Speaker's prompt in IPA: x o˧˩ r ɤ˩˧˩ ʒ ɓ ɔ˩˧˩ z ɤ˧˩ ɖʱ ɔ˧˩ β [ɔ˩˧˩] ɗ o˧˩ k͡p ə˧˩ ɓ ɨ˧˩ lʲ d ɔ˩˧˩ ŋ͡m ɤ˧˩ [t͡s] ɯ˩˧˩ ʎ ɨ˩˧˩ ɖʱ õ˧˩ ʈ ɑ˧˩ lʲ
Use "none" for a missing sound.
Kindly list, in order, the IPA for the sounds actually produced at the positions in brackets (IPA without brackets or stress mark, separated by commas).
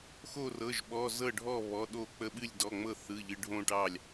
ɔ˩˧˩, θ